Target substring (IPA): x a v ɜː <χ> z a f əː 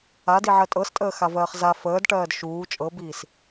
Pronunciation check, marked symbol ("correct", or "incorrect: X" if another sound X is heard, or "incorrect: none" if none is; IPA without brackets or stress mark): correct